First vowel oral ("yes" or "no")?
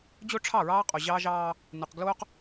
yes